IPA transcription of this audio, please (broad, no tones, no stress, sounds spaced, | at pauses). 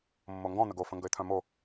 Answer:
mː o ŋ ɡ ɔ̃ n̪ ə ɡ o f ə̃ ŋ ɡ ə ɪ̯ t̪ʰ œ̃ m o